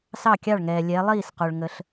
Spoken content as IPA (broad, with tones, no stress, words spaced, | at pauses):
sɑ˥˩kʲɑ˥˩ɭŋɛː˩ lʲɛ˩˧lˠiː˥˩sqo˩ɭ ŋə˩ɬ